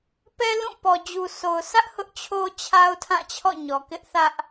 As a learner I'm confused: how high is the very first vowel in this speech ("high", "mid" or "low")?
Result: mid